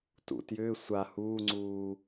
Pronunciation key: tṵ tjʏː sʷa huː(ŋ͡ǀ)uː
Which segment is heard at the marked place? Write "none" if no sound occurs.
ŋ͡ǀ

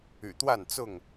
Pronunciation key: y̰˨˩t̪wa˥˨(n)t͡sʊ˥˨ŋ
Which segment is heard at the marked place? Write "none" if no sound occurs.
n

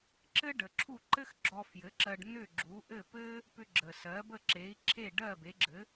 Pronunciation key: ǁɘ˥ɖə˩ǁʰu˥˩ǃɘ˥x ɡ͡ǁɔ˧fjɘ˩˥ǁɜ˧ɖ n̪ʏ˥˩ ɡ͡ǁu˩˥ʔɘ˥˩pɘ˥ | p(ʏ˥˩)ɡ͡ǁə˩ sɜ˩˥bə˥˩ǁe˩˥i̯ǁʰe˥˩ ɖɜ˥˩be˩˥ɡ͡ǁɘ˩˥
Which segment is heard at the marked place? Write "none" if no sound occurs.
ʏ˧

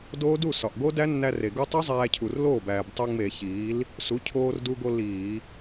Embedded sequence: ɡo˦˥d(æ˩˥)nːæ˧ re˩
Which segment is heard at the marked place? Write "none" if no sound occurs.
æ˦˥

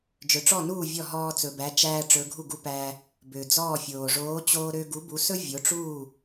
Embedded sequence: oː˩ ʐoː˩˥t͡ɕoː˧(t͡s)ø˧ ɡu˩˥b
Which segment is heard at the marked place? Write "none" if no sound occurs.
ɾ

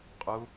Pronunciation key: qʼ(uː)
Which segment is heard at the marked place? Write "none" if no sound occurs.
u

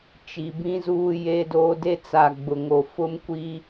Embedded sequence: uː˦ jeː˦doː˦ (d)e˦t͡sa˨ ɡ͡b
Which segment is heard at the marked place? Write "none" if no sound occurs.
d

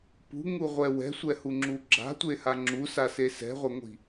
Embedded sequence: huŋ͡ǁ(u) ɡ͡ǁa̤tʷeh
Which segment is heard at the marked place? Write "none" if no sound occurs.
u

